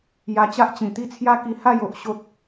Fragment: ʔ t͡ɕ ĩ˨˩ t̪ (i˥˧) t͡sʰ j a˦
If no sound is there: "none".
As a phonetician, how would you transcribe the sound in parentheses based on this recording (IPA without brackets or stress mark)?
i˥˧